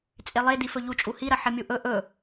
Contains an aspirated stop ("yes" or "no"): no